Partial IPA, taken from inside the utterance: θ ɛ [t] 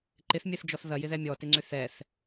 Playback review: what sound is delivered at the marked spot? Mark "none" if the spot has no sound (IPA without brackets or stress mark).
θ